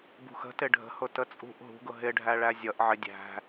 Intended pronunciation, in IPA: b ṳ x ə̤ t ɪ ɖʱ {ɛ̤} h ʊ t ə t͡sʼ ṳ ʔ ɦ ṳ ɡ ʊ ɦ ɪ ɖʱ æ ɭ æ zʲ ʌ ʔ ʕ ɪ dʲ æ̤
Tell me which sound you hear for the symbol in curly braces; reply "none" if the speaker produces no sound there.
ə̤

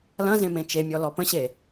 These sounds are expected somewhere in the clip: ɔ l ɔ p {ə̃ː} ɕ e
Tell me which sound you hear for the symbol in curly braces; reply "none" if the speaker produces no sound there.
ə̃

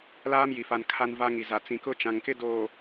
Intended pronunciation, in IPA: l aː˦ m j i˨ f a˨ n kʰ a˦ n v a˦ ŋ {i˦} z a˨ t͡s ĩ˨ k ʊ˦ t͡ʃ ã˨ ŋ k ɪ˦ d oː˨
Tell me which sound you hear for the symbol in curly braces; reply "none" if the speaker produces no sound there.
i˨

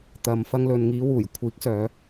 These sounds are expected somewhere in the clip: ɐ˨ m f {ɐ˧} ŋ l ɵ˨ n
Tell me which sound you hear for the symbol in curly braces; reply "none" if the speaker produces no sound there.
ɐ˧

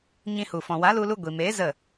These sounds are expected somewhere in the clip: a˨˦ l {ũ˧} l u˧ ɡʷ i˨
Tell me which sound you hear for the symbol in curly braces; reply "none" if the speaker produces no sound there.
u˧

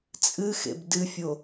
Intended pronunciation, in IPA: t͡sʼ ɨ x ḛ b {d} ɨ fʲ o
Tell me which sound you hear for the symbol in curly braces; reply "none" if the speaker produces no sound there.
d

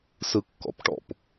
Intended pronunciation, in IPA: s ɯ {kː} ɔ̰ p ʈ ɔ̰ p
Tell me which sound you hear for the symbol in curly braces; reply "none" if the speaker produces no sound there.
kː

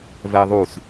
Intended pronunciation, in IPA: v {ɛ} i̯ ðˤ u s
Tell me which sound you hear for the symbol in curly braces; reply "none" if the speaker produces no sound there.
ɛ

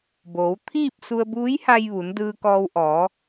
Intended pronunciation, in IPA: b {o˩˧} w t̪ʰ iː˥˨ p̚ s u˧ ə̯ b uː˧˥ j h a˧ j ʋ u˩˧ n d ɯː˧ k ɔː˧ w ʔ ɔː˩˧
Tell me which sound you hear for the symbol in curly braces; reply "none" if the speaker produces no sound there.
oː˩˧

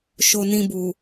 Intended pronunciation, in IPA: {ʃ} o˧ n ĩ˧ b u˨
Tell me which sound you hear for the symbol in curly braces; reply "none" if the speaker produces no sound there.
ʃ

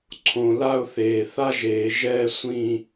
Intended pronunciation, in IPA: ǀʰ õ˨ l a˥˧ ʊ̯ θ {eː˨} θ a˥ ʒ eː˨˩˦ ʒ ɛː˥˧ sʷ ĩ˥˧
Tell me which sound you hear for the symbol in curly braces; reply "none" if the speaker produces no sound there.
eː˨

